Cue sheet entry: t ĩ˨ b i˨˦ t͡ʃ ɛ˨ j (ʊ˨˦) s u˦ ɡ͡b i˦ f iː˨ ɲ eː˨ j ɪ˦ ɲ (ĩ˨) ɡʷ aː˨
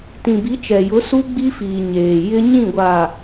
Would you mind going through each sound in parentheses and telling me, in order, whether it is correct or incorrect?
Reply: correct, incorrect: ĩ˦˨

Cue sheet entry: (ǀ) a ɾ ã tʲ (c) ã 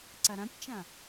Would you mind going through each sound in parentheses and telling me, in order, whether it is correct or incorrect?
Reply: correct, incorrect: t͡ʃ

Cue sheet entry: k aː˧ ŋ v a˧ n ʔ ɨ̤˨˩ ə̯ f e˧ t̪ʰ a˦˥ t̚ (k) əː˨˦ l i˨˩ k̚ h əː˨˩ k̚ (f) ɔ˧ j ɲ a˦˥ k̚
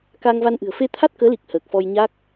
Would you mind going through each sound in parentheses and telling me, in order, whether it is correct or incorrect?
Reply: correct, correct

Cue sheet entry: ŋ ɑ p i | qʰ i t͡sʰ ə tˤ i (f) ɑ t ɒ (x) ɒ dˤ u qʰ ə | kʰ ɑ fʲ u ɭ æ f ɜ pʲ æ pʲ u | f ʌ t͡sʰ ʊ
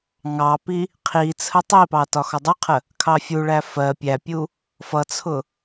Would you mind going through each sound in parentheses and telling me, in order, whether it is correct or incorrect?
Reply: incorrect: p, correct

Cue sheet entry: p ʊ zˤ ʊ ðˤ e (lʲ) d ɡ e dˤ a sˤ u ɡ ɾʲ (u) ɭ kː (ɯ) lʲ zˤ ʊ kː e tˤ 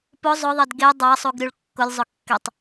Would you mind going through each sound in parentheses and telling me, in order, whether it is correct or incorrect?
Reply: incorrect: none, correct, incorrect: ʊ

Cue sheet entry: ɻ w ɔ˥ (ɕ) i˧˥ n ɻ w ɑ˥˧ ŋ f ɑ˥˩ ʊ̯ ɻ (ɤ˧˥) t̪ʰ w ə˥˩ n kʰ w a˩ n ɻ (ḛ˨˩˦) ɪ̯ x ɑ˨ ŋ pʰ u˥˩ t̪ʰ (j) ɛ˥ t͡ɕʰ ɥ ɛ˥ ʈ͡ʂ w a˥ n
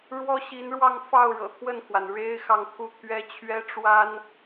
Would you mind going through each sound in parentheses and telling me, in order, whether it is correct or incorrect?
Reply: correct, incorrect: ɤ̰˨˩, incorrect: e˥, incorrect: ɥ

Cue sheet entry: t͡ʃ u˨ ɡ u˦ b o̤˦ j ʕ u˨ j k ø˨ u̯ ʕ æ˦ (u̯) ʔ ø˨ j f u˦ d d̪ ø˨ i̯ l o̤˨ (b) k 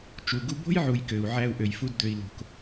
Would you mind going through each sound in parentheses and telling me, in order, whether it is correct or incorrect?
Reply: correct, incorrect: none

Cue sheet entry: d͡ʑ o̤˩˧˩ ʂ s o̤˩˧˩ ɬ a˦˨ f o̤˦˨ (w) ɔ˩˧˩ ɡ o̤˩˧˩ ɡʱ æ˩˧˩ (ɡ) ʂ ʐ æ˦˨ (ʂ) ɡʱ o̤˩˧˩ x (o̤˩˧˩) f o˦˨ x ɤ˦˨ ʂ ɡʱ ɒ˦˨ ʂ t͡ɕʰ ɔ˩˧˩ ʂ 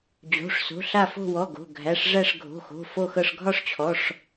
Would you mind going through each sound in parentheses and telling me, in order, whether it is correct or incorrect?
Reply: correct, incorrect: none, correct, correct

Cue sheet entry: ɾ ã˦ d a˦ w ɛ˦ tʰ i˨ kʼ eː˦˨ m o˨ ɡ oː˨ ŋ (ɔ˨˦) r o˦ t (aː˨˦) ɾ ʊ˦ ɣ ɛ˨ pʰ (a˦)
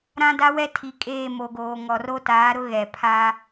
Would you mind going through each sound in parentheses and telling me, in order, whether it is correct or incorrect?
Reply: incorrect: ɔ˨, correct, correct

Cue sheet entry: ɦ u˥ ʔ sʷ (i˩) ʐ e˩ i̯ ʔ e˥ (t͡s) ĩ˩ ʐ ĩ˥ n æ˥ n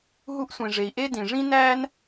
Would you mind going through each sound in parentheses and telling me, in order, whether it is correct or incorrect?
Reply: incorrect: ĩ˩, incorrect: d

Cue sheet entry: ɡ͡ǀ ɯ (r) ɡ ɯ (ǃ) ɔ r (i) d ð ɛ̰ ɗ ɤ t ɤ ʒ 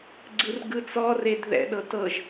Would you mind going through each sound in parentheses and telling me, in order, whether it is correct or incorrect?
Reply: correct, incorrect: t͡s, incorrect: e

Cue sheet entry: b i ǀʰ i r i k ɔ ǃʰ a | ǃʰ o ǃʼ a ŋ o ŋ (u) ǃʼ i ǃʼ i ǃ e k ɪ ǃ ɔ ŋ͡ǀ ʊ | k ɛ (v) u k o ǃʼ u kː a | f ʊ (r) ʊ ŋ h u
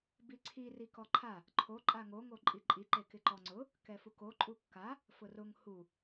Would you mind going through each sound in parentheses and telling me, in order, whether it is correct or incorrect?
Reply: incorrect: o, incorrect: f, correct

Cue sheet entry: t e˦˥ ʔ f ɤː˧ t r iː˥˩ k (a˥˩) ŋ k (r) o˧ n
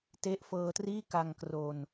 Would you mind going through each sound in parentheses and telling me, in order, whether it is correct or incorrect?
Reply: incorrect: a˧, correct

